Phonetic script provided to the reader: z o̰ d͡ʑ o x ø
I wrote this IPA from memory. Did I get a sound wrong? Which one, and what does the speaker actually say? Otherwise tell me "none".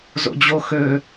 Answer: none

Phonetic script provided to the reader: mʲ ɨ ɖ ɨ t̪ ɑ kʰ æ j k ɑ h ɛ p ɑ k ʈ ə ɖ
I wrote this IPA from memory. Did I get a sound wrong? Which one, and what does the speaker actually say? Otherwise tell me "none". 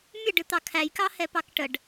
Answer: none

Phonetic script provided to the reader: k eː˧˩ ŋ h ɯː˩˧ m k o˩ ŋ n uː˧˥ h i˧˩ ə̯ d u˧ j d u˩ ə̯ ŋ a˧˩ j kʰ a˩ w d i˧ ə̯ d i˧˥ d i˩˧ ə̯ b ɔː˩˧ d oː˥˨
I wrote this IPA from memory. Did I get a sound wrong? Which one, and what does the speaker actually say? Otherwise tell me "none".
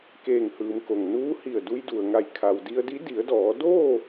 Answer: b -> d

